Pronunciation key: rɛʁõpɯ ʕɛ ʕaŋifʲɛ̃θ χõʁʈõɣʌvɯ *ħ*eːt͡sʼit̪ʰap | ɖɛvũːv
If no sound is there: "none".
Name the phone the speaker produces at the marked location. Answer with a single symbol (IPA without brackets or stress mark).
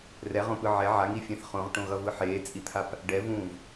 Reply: ħ